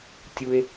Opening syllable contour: high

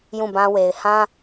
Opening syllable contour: falling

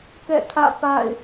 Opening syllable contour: falling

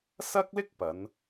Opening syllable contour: high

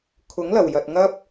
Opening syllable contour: rising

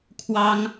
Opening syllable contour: high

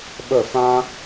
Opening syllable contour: falling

